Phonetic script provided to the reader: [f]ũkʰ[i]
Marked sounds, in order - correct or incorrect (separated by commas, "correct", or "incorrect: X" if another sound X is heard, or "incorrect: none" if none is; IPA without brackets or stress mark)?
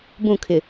incorrect: b, incorrect: ɪ